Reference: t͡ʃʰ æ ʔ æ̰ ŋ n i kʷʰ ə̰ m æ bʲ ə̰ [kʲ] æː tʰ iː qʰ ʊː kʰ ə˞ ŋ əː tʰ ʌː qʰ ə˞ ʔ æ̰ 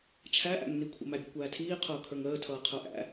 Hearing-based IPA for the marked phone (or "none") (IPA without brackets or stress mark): kʷ